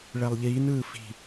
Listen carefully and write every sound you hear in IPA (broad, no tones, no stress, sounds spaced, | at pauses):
ɭ ɛ lˠ ʎ iː n ɯː f i̤